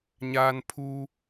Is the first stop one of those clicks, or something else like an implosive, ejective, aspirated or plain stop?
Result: aspirated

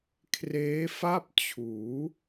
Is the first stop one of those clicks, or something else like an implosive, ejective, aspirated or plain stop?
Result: aspirated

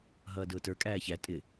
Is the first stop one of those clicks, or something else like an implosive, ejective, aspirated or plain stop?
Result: plain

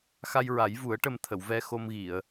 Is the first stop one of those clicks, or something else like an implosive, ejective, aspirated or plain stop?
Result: plain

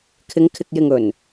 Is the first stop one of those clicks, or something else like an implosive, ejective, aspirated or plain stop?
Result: aspirated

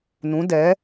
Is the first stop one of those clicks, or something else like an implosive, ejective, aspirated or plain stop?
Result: plain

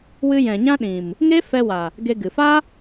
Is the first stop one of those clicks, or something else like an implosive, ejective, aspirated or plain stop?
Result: implosive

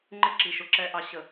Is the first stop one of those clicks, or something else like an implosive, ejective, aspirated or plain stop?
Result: click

